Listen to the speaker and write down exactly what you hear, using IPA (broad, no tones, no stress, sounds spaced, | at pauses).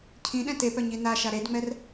cʰ ĩ ɗ ɛ̃ t e p œ ɲ i n a ʃ a ɾ e d ŋ͡m ɛ r